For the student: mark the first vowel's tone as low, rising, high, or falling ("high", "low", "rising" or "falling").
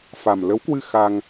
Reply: low